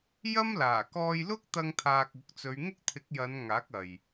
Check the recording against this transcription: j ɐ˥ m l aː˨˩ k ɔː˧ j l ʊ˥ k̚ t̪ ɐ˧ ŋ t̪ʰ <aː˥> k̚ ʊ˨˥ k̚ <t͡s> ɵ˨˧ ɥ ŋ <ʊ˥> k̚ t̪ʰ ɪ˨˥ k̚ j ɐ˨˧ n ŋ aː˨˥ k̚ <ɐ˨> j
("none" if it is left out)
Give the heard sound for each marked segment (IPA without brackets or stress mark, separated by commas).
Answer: aː˧, t͡s, ʊ˥, ɐ˨